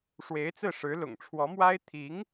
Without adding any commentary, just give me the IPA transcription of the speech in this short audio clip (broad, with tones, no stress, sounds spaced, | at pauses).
ʂ w e˧˥ ɪ̯ t͡s ɹ̩˥˩ ʂ ɻ̩˧˥ l ʊ̰˨˩ ŋ ʈ͡ʂʰ w ɔ˧˥ m w a˥ ɪ̯ t̪ʰ i˧˥ ŋ